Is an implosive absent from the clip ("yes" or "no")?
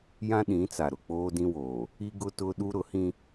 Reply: no